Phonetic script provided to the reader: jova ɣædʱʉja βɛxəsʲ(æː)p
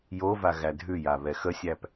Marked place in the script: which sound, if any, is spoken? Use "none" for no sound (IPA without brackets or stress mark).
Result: æ